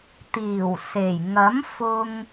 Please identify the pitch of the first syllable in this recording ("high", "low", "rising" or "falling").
low